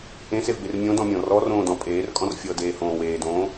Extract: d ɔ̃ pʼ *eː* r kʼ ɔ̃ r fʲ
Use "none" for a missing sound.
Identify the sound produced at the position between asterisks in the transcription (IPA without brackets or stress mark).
eː